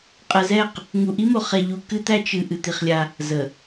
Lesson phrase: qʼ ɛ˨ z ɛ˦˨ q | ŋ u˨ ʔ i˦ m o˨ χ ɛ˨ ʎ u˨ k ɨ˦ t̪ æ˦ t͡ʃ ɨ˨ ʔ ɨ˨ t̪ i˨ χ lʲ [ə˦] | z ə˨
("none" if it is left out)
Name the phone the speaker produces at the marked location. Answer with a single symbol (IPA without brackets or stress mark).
a˦